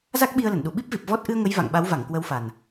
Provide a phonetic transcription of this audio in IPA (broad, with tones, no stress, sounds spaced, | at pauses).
z a˦˥ k̚ ɓ i˧ ə̯ l ə˧˩ n ɗ u˧˩ ɓ i˦˥ p̚ v i˨˩ p̚ v ɔ˦˥ t̚ ʔ ɨ˧ ə̯ ŋ ə˨˦ j v a̰˧˨ ŋ ɓ a˨˦ w v a˧˩ ŋ k w ə˨˦ w f a˨˩ n